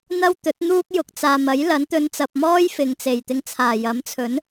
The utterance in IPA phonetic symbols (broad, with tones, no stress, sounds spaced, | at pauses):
n̪ ɐ˥ w t̪ ɵ˨˥ t̚ n̪ uː˥ k̚ j ʊ˨ k̚ t͡s aː˨ m ɐ˨˥ j l ɐ˨˥ n t̪ ɵ˨˧ n t͡s ɐ˨ p̚ m ɔː˥ j f ɪ˨ ŋ t͡s e˨˩ j t̪ ɪ˧ ŋ t͡sʰ aː˨˩ j ɐ˨˥ m t͡sʰ ɵ˨˥ n